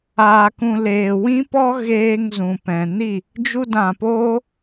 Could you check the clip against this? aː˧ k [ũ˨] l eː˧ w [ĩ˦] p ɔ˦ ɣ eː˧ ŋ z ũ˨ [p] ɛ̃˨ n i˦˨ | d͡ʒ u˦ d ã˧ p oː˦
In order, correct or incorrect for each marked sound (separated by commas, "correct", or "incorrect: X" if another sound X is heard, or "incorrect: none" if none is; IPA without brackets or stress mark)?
incorrect: ũ˧, correct, correct